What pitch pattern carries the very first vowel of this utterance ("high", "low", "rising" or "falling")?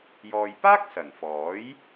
low